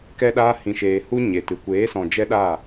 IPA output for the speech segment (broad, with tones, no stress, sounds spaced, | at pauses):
k ɛ˧ ɗ aː˧ h ĩ˨ ʃ eː˨ h u˦ ɲ e˨ t ɨ˨ kʷ eː˨˦ s ɔ̃˨ d͡ʒ ɛ˦ ɗ a˦˨